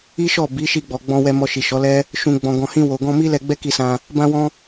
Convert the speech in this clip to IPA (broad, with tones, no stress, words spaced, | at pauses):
i˦ʃɔ˦˨ bi˨˦ʃi˧ɡ͡bɔ˨ ɡ͡bɔ̃˧ wɛ˧mɔ˧ʃi˨ ʃɔ˨˦lɛ˦ | ʃũ˨ɡ͡bɔ̃˨ ɡɔ̃˨hĩ˧ wo˨ɡɔ̃˧ mi˦lɛ˧ɡ͡bɛ˦ ki˧sã˧ | bã˧wɔ̃˧